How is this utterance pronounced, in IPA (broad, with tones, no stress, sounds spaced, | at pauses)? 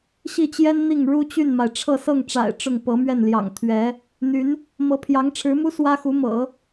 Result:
ɕ i˥˩ t͡ɕ j ɛ˥ n n̪ i˥˩ ŋ ɻ u˥ t͡ɕ y˥˩ n m a˩ ɪ̯ ʈ͡ʂʰ ɤ˥˧ s ɤ˥˩ ŋ ʈ͡ʂ a̰˨˩ ɪ̯ ʈ͡ʂ ʊ˥˩ ŋ p ɤ˧˥ m ɥ ɛ˥˩ n l j ɑ̰˨˩ ŋ t̪ʰ ɥ ɛ˧˥ | n̪ y˧˥ n | m ɤ˧˥ pʰ j ɑ˧˥ ŋ ʈ͡ʂʰ ɻ̩˧˥ m u˥ s w ä˥ x u˧˥ m ɤ̰˨˩˦